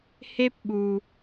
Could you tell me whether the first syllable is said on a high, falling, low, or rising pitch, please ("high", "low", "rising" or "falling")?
high